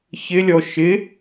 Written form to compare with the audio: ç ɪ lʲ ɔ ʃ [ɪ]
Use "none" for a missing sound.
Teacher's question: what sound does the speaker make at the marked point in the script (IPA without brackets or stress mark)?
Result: ɪ